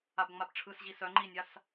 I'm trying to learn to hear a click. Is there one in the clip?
yes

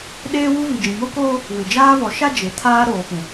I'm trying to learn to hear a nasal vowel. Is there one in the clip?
yes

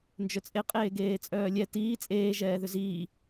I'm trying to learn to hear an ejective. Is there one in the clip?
yes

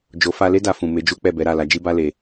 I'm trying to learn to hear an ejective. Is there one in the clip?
no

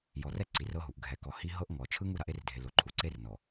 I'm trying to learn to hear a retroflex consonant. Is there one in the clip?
no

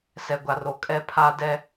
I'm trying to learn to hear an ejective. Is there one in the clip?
yes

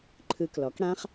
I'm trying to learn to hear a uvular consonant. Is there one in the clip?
yes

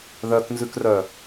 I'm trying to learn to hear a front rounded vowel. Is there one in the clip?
yes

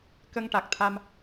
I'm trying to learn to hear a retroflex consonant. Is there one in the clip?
yes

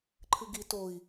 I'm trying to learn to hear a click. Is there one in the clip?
yes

